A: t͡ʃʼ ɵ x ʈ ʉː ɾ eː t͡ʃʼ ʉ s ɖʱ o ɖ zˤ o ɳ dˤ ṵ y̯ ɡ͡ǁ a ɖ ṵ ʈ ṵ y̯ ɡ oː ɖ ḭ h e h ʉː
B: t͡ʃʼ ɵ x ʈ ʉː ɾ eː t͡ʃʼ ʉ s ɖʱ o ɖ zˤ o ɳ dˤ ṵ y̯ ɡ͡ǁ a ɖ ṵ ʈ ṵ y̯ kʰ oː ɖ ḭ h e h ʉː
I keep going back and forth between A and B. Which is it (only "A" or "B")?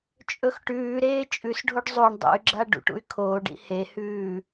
B